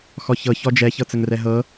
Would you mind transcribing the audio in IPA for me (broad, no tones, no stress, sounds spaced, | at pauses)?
x ɔ ç ɤ ç ɔ d͡ʒ ɛ ç ɤ t͡s ə ŋ r ɛ ɦ ɤ